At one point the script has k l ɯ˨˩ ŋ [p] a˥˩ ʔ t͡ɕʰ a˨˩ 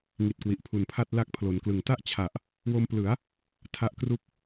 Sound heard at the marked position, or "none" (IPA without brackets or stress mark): t